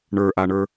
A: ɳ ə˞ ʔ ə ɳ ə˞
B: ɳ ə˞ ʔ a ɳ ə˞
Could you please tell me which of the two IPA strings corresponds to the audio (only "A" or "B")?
B